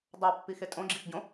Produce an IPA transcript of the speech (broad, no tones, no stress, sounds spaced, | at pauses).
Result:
dˤ a pː i x e tʼ õ ɡ͡ǁ i x ɟ õ